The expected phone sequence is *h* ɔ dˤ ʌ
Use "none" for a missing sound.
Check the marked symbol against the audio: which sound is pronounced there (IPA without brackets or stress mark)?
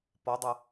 p